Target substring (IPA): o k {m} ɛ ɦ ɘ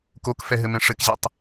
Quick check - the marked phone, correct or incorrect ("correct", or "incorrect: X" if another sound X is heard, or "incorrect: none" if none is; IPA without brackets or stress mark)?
incorrect: f